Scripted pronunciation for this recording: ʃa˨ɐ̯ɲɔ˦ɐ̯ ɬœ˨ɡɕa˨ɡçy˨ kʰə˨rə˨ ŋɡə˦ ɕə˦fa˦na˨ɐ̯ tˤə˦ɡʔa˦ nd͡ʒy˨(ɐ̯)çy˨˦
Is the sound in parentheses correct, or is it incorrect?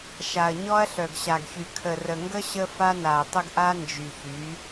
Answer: incorrect